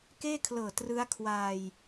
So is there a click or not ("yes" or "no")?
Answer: no